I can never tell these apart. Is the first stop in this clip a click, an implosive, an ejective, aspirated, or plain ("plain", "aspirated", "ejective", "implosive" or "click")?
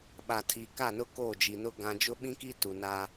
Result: implosive